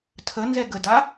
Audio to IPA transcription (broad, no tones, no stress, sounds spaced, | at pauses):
tʰ ə n z ɛ ɡ ə d a